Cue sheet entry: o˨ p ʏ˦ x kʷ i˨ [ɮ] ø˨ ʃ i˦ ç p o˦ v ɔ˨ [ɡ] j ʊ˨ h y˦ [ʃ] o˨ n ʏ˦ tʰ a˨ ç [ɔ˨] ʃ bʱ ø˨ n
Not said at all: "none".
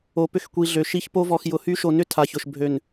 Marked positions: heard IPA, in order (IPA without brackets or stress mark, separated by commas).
ɮ, x, ʃ, ʊ˨